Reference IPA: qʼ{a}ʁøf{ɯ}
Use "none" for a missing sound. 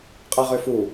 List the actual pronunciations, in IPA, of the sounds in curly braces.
æ, u

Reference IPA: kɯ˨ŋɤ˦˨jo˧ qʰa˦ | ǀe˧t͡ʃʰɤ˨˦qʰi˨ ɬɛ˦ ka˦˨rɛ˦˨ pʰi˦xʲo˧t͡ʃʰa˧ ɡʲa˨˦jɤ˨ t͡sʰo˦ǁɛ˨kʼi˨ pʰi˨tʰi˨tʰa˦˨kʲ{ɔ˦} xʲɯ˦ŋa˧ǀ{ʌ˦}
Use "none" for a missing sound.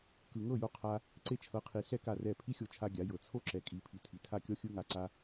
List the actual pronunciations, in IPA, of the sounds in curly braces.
ɔ˦, a˦

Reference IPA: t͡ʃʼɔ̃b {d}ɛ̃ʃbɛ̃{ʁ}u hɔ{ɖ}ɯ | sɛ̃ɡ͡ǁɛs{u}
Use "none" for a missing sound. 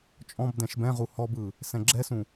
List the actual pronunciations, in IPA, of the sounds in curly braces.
d, ʁ, b, ũ

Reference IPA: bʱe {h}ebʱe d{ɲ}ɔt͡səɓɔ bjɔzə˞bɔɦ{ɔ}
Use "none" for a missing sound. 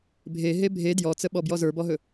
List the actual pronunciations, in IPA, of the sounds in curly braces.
ɦ, j, ɵ

